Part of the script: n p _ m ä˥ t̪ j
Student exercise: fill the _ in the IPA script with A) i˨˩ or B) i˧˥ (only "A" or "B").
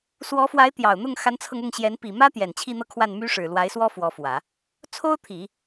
A